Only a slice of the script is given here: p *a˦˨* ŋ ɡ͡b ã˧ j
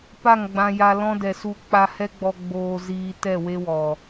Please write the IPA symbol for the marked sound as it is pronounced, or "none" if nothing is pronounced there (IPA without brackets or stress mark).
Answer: a˦˨